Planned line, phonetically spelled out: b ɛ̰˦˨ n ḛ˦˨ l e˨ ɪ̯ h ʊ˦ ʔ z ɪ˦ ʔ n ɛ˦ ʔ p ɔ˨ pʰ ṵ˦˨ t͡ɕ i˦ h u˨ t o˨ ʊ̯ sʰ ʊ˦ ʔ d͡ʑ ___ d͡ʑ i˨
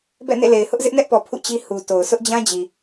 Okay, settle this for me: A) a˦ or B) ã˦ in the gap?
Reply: B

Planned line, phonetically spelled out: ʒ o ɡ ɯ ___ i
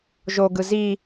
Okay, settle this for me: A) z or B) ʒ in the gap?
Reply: A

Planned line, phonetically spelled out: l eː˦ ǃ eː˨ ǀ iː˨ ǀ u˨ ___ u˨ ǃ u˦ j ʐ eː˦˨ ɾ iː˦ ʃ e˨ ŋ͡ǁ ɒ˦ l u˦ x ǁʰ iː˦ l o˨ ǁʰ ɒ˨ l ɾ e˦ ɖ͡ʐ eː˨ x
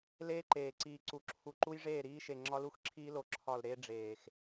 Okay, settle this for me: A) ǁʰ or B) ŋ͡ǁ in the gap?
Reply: A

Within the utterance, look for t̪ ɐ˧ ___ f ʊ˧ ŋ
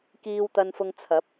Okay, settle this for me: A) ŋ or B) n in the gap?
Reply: B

